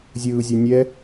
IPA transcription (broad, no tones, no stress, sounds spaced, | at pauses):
zʲ ɯː zʲ ɛ nʲ ɛ